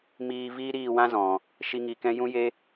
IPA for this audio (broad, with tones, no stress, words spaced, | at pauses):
miː˧ viː˦ɾiː˦˨wã˦ zɔ̃˨ | ʃi˦ŋi˧kɛ̃˦ jũ˦je˦